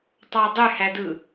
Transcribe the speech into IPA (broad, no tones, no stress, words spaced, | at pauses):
tˤɑdˤyhædɯ